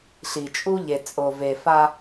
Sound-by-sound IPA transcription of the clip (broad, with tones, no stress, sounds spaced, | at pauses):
ɬ i˨ t͡ʃʼ u˦ ʎ e˨ t͡sʼ o˨ v e˨ f a˦